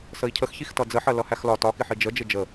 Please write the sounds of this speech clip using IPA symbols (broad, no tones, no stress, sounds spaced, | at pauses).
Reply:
s ə i̯ cʰ ə x ç i x t ʌ d͡z ə ħ ɜ l ʌ h æ x l ɒ t ɒ k ɪ ħ i d͡ʒ ə d͡ʒ ɪ d͡ʒ ə